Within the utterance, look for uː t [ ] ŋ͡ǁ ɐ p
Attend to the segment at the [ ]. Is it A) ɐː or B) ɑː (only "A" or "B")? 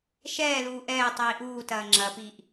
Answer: A